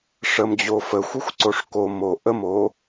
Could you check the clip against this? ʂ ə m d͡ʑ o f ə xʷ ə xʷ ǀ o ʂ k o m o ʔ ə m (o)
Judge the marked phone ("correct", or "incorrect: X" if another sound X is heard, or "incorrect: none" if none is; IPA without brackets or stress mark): correct